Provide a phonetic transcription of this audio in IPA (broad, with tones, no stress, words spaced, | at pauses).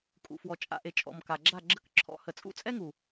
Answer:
kʼṵ˨fwɔ˨ t͡ʃʼa̰˧ʔe˨ t͡ʃʼɔ̰˨mka˨ɡ͡ǁa˦˨ ɡ͡ǁə˧kǁʰɔ̰˧ hə˨t͡sʼṵ˦t͡sʼɛ˦ŋu˨